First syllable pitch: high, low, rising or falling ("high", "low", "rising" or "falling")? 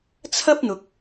high